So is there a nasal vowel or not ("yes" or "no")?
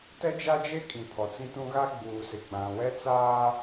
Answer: yes